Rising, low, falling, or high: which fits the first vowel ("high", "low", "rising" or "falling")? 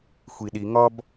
low